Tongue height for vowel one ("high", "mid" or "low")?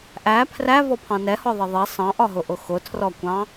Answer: low